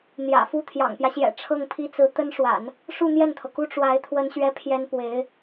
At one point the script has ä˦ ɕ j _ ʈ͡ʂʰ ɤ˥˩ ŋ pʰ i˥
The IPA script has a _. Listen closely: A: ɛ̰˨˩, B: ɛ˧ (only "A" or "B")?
A